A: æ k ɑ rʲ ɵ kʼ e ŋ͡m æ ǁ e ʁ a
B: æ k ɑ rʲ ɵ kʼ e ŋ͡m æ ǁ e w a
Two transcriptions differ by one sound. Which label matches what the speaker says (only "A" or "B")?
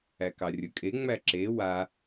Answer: B